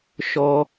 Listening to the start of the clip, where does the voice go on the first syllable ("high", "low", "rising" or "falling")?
high